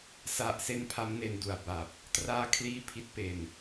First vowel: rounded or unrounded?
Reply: unrounded